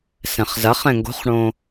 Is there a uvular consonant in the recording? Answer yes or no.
yes